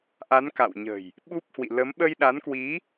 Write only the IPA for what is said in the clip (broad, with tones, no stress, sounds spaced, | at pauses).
ʔ a˨˦ n k a̰˧˨ w ɲ ə̤˨˩ j | ɓ u˦˥ p̚ h w ḭ˧˨ l ə˨˦ m ɓ ə˧ j ɗ a˨˦ n k w i˨˦